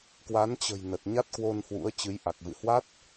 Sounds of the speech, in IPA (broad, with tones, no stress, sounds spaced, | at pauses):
k w a˨˦ n t͡ɕ ə̤˨˩ j n ə˨˩ t̚ ɲ a˦˥ t̚ k w o˧ n h w ṵ˧˥ ə̯ t͡ɕ ɨ˨˦ j ʔ a˨˩ k̚ v ɨ̰˧˨ h w a˦˥ t̚